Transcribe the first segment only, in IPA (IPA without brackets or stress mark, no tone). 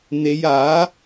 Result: n̪